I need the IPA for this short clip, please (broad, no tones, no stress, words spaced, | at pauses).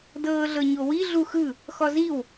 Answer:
dɤːɮɤɲowi ɮuxɯ | xɔziw